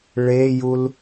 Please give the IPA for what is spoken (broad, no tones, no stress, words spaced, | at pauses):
ɭejul